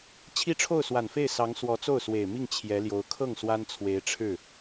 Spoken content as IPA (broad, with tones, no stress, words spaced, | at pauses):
t͡ɕʰi˥ʈ͡ʂʰo˥˩ʊ̯swa˨˩nfe˥˩ɪ̯ sɑ˧˥ŋ swɔ˧˥t͡so˥˩ʊ̯swe˨˩ɪ̯mi˥˩ŋ t͡ɕʰjɛ˧˥ljo˧˥ʊ̯ kʰɤ˥˩ŋ swa˥nt͡sʰwe˧˥ɪ̯ʈ͡ʂʰɻ̩˥˩